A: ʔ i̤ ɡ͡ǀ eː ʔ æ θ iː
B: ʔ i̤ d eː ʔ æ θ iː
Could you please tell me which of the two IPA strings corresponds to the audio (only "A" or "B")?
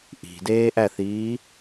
B